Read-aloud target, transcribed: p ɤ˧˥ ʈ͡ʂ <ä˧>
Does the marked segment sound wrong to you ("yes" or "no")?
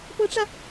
no